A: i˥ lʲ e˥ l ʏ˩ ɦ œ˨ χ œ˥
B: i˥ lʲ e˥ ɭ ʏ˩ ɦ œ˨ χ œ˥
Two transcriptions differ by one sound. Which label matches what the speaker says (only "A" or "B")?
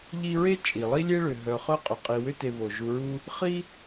B